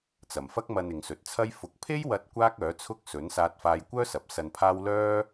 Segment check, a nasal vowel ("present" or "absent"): absent